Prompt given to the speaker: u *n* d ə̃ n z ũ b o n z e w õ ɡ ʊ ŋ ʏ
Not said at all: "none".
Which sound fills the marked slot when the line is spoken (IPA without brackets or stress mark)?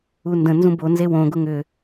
n